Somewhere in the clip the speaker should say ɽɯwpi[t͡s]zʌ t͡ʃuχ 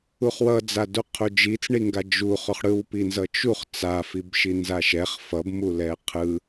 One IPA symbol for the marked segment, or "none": n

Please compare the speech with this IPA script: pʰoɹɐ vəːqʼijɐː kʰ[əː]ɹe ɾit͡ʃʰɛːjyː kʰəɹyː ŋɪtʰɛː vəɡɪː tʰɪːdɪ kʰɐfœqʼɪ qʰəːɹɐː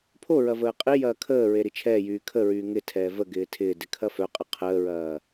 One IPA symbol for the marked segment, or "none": əː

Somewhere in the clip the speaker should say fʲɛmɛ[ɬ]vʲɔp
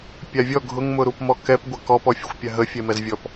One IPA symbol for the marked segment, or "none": z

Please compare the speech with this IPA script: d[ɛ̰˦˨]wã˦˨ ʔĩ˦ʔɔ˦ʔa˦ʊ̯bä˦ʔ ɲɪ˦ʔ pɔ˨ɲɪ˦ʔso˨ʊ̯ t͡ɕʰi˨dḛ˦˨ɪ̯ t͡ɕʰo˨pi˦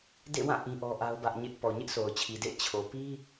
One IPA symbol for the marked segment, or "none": ḛ˦˨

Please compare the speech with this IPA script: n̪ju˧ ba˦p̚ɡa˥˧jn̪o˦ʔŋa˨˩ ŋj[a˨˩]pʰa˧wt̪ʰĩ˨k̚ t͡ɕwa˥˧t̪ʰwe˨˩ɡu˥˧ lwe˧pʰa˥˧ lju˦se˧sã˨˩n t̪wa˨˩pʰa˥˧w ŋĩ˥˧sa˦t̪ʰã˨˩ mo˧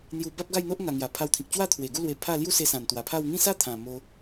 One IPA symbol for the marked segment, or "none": a˨˩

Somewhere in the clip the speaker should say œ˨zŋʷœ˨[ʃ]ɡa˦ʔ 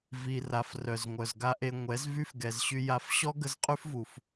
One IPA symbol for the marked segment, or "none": z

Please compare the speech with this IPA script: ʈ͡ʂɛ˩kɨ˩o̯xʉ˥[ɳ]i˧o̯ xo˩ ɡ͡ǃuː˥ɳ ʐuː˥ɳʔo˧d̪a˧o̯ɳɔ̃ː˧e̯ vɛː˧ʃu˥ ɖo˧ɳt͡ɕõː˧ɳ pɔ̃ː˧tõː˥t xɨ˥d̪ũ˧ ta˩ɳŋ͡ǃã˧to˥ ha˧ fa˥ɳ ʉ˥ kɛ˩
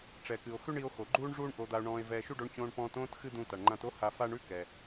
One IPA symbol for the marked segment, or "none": ɳ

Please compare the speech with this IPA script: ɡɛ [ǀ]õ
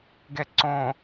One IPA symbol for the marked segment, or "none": ǀ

